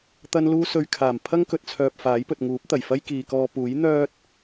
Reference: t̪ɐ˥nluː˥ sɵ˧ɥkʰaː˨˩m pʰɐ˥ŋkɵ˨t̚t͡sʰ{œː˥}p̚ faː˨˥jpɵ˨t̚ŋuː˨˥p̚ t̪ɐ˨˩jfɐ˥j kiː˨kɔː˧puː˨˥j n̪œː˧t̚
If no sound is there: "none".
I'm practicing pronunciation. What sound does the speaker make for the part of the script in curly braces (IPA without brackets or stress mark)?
œː˨